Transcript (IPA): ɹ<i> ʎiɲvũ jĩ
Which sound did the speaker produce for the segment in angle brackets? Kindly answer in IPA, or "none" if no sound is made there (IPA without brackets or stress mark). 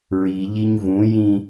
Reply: i